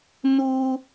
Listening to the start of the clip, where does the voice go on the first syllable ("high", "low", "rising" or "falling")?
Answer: high